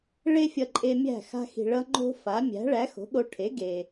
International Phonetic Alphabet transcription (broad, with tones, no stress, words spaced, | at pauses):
ɭe˥fʲʌ˧ǃʼe˧mʲæ̤˥˩ xa̤˧xi̤˩ɭʌ˧ ŋ͡ǃo̤˥ fa˩˥ mʲæ̤˩˥ɭæ˩˥ xo̤˩˥ɠo˧ʈʰe˩˥ ɡe˩